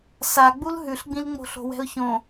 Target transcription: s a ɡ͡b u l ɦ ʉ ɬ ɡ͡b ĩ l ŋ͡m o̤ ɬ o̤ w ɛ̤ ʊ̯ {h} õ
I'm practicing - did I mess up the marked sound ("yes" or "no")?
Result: yes